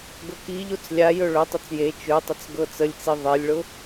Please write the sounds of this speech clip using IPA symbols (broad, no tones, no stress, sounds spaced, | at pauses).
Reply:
ɡ ɤ k i ʎ o t͡s lʲ a j ɵ ɭ ɵ tˤ ʊ t͡s j e t͡ʃ ɵ tˤ ə t͡s ɡ ɤ t͡s ə lʲ t͡s i ðˤ e lʲ ɭ ʊ